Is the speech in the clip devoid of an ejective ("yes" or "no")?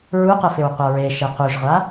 yes